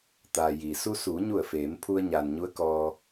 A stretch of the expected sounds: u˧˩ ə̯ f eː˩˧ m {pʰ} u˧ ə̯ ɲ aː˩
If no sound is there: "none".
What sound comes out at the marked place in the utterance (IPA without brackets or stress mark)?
pʰ